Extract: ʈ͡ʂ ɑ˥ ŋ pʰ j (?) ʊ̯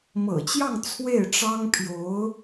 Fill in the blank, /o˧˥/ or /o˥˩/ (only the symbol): o˧˥